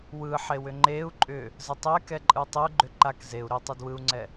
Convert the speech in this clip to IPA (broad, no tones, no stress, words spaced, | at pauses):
wɯħewʏ ŋ͡ǃeu̯ ǃʼʏ | zətˤɛkɛ ǃʼɯtˤɪu̯ ɡ͡ǃʏǃak zeu̯ ɾʏ tˤedwɯu̯ŋ͡ǀɛ